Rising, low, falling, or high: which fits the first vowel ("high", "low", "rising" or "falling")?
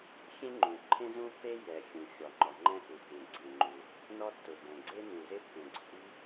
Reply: high